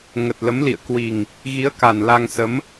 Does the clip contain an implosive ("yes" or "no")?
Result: no